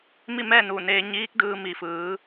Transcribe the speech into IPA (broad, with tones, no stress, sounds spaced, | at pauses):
m i˥˨ m ɛː˥˨ n uː˧˩ n eː˧ ɲ iː˧˥ k̚ d ɯː˧ m i˧˩ f ɯː˩˧